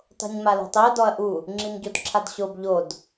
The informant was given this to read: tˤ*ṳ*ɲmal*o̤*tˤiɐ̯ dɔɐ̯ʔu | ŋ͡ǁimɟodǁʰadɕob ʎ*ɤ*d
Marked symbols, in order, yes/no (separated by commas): no, yes, no